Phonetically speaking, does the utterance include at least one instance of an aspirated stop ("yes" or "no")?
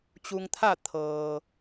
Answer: yes